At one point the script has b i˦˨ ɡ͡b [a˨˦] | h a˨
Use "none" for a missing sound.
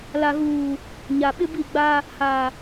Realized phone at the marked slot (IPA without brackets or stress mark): a˦